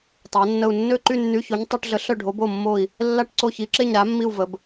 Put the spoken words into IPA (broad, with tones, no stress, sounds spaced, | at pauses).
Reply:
tˤ a˧˥ nː ə˥˧ u̯ nː ø˥˧ ǃ y˥˧ nː y˧˥˧ ç o˧˥ ɲ tˤ y˧˥˧ ʈ ɮ ə˧˥ ɬ œ˥˧ ɖʱ o˧˥ b o˥˧ mː o˥˧ i̯ | lː a˥˧ ʈ ǀ o˥˧ ç i˧˥ ǁ e˥˧ ɲ ɾ a˧˥ mː i˥˧ u̯ v ə˧˥ b